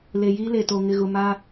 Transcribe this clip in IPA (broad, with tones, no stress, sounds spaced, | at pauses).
l e˨ j iː˦ l e˨ t o˨ ŋ ɪ˨ ɣ ʊ˨ m a˦